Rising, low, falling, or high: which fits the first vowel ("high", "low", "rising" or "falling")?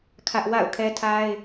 high